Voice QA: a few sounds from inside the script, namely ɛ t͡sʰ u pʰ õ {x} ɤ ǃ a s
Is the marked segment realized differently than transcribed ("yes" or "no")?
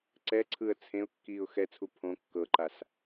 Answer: yes